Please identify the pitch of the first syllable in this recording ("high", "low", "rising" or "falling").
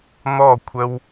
falling